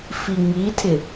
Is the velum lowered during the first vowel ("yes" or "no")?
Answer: no